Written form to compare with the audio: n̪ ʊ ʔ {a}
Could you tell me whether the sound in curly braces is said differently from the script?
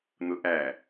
yes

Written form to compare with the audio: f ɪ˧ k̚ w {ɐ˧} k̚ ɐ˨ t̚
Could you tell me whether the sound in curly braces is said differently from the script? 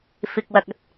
no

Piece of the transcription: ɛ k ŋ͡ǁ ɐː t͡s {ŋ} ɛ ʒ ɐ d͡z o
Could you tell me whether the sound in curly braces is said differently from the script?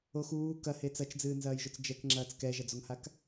yes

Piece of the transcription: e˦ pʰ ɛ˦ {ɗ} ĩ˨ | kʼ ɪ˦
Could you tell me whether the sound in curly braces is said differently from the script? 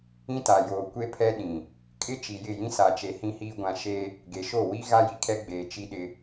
no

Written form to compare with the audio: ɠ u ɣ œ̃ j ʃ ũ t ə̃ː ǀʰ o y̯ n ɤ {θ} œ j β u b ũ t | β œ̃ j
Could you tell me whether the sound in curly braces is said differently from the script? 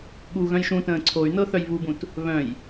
no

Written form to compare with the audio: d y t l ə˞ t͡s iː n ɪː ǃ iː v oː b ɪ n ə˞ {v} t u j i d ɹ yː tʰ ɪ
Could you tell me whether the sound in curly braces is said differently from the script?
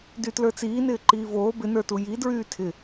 yes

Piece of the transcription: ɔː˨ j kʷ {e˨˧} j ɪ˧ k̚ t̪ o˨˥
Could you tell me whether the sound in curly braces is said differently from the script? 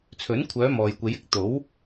no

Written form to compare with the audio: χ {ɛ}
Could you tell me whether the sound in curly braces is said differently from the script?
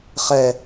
no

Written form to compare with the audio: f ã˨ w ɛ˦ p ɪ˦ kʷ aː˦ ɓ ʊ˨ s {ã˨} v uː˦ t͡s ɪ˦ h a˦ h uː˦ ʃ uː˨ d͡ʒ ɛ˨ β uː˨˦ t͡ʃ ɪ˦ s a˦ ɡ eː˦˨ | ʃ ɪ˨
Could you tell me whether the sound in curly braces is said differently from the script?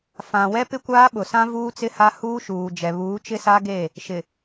yes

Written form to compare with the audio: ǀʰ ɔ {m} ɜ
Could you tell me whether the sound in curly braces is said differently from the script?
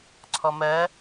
no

